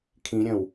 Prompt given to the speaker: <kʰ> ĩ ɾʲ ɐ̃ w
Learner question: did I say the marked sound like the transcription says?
yes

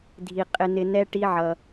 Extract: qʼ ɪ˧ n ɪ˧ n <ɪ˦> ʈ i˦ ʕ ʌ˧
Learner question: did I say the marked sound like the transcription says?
no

